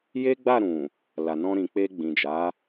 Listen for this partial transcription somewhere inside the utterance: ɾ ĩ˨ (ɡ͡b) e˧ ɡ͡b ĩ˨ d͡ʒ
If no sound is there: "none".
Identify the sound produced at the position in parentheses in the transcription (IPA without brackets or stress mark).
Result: k͡p